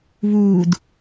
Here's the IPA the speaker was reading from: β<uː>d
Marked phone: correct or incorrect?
correct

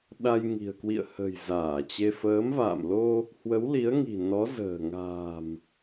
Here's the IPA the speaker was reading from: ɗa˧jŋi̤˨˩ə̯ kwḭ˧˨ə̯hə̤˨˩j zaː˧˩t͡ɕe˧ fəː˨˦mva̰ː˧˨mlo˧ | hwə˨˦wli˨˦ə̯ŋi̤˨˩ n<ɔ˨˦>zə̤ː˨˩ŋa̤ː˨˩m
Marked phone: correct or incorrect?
correct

